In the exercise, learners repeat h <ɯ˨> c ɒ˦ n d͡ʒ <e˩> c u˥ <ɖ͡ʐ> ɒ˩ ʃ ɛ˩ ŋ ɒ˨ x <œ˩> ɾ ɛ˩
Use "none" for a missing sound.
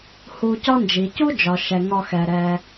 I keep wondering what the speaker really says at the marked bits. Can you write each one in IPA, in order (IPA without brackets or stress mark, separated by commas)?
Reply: u˨, i˩, d͡ʒ, ɛ˩